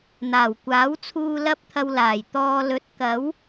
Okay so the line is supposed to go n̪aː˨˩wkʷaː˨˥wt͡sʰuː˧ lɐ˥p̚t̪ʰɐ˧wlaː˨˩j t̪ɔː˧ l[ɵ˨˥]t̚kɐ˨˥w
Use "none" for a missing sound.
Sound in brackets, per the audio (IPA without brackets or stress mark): ɵ˨˥